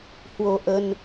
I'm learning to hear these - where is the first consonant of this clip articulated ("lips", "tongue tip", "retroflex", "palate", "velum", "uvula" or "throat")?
throat